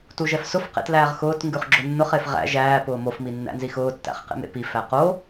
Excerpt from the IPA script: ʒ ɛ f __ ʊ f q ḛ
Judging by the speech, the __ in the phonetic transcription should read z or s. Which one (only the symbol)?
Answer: s